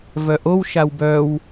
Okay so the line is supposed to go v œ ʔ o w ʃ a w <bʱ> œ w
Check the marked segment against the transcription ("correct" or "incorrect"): incorrect